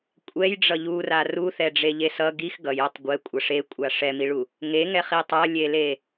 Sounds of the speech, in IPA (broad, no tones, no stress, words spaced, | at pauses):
kʷʼɛjɖ͡ʐʌ ʎura ruθɛɖ͡ʐeʎe sʌ ɡix ɡʌjotˤ ɡʷɛkʷʼʌ ʂekʷʼa ʂɛmiɭu | ŋeŋɛχi tˤʌlʲele